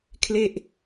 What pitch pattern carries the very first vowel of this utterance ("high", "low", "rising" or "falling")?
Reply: falling